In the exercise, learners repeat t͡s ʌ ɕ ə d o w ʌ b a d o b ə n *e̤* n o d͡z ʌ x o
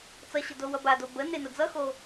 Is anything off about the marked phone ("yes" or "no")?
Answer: yes